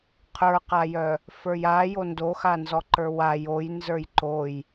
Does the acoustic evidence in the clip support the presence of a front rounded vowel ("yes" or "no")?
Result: yes